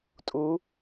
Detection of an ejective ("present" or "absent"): present